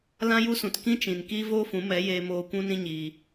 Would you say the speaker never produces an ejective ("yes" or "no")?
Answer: yes